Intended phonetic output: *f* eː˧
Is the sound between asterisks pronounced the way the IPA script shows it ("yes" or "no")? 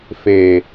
yes